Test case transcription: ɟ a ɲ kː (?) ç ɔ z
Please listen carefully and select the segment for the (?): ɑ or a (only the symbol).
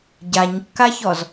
a